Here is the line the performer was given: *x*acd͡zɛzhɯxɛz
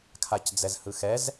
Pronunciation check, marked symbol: incorrect: kʰ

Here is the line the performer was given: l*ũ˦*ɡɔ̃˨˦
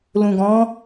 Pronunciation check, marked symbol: incorrect: ũ˨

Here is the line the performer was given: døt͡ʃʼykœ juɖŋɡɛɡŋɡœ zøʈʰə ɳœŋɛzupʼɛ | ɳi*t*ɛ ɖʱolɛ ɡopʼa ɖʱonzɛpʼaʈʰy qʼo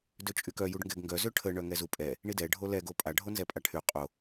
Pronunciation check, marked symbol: incorrect: d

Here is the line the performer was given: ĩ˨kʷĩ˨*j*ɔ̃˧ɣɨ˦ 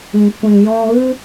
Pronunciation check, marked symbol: correct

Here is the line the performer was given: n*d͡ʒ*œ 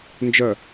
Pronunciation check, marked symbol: correct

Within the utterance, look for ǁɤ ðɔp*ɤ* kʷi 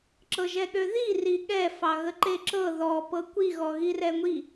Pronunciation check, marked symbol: correct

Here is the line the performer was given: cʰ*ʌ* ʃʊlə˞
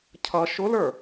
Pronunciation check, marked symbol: correct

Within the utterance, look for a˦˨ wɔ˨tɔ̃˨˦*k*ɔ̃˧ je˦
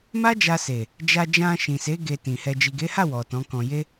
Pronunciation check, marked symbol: correct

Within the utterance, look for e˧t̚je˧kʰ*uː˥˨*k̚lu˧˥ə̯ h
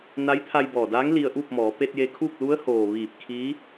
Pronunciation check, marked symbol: correct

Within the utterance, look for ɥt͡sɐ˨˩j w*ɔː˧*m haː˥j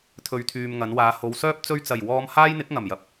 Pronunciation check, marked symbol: correct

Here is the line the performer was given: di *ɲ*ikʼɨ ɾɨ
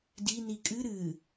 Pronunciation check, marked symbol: incorrect: n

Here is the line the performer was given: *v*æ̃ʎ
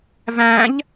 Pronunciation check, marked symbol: correct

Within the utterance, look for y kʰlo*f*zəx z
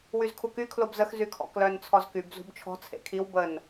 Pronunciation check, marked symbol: incorrect: b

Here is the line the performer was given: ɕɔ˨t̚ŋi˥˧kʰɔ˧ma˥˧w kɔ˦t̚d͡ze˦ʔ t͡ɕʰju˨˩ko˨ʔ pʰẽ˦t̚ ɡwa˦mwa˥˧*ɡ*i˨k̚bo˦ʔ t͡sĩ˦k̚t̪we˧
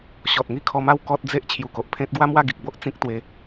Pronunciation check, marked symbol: correct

